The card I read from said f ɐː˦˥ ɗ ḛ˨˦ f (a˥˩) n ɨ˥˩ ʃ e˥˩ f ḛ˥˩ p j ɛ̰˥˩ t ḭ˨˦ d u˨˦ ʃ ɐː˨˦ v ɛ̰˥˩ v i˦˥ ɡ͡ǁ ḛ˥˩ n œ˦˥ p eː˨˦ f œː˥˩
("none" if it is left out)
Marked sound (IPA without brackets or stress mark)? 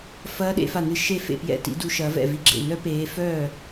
a˥˩